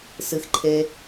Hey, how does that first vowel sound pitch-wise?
low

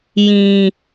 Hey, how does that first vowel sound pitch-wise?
low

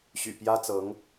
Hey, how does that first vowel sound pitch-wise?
low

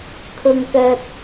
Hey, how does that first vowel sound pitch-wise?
low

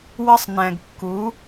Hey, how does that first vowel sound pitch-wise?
high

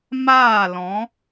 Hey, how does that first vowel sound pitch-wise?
falling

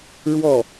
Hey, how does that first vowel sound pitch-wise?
falling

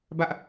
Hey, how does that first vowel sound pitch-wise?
high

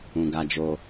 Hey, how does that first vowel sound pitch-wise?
low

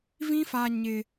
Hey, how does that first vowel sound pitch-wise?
high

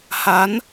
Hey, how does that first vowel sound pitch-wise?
rising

